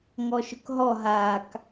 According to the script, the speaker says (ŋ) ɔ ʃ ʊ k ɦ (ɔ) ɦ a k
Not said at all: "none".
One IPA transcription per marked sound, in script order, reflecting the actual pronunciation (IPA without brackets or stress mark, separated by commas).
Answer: ŋ, ɔ